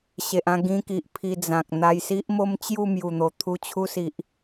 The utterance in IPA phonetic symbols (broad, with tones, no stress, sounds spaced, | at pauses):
ɕ e˨ ʔ ã˥˧ ɡ ĩ˧ k i˨ ʔ pʰ i˧ d͡z ã˨ k̚ n̪ a˧ j s i˦ ʔ m o˦ m t͡ɕ j u˥˧ m j u˨˩ n̪ o˨˩ t̪ʰ u˧ t͡ɕʰ u˧ s i˨ ʔ